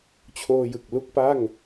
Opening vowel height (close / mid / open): mid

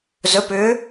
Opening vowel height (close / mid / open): mid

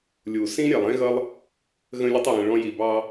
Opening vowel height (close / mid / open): close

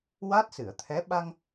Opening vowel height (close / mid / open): open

